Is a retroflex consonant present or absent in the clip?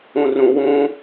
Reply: absent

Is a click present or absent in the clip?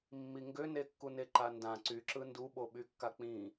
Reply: present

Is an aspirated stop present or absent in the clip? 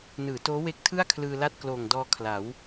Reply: present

